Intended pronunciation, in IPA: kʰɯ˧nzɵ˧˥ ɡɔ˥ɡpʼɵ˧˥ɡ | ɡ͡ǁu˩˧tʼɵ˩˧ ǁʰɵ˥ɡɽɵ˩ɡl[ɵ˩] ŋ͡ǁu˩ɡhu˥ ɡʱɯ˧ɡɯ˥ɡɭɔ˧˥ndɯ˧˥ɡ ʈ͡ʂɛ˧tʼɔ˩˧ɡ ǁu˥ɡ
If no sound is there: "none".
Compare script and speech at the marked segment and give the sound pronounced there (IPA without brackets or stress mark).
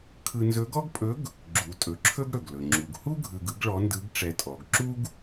ɵ˩